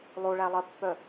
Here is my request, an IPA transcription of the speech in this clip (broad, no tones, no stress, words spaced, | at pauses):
lˠoɭælˠɜpːœ